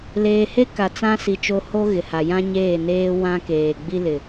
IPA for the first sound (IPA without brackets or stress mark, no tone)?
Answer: l